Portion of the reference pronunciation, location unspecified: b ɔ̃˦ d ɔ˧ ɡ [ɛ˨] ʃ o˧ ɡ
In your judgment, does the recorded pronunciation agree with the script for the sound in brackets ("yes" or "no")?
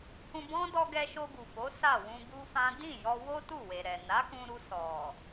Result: no